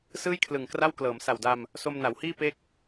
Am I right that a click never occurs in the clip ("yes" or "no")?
yes